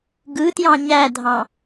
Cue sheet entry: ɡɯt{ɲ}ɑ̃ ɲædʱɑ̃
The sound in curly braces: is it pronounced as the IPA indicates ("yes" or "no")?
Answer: no